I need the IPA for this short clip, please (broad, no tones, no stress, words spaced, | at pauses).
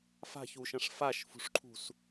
fa̤çuʃɐ̃ʂ faʃfṳʂǃʰṳs